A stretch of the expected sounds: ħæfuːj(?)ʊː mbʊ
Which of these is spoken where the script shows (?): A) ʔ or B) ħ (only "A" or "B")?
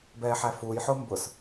B